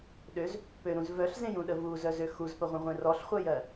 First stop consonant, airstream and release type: implosive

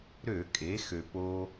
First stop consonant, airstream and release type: ejective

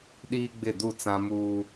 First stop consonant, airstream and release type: implosive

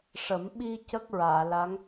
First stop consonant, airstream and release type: implosive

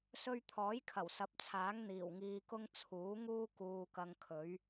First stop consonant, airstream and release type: aspirated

